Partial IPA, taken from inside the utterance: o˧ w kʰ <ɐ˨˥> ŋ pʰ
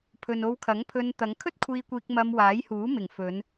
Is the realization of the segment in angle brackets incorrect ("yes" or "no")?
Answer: no